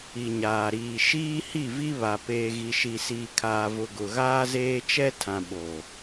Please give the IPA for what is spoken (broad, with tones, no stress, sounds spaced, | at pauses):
i˨ ɲ aː˨ ɾ iː˨ ʃ iː˦ h i˦˨ v i˦ β a˨ p eː˨ ɣ i˨ ʃ i˨ s iː˨ kʰ aː˨ v ʊ˨ ɡ ʊ˨ ɣ aː˦ z eː˦ t͡ʃ ɛ˦ tʰ ã˨ ɓ o˨